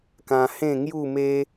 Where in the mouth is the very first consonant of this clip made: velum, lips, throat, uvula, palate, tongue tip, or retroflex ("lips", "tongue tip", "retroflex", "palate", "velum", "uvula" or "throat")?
velum